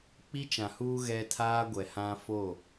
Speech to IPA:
k͡p i˦ t͡ʃ ã˨ h uː˦ ɣ ɛ˦ tʰ aː˦ ɡʷ ɛ˨ h ã˦ f o˦˨

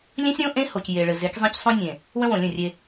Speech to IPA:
lʲ ẽ˦ sʲ ɾ õ˦ ʔ ẽ˦ h o˨ c j e˨ ɭ ɘ˨ z e˨˦ k zˤ ẽ˦ c sˤ õ˦ nʲ ẽ˨ | w ə̃˦ w õ˨ lʲ ə̃˦˨ rʲ e˦

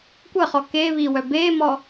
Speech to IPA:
kʷ ə χ ɔ k e β i w œ b e m ɔ

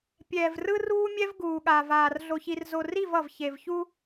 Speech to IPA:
pʲ ɛː˨ v r ɯ˦ r uː˦ mʲ ɛ˦ v ɡ uː˨ ɠ a˨ v aː˨ r ɮ o˨ ç i˨ r z o˨ r i˦˨ v ʌ˨ v ç e˨ v ç u˦

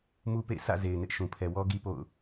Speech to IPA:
m u˦ p ḛ˦˨ ɪ̯ s ä̰˦˨ z e˨ ɪ̯ n ɪ˦ ʔ ʃ ũ˨ pʰ ɛ˨ w ɔ˦ ɡ i˦ p o̰˦˨ ʊ̯

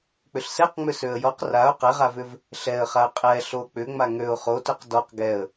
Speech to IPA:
k͡p ʏ ɬ s ɛ q ŋ͡m ʏ s ø ə̯ j ɔ q r a ʊ̯ q ɛ ʁ a v ʏ v | ɬ ɛ ə̯ χ a ə̯ qʼ ɛ ɬ o k͡p ʏ ŋ͡m a ŋ ø ʊ̯ χ o t ʏ q d ɔ q ɡ ɛ ə̯

